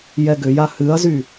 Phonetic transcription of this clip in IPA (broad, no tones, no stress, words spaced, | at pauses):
jɛɡʏja hɨɐ̯zy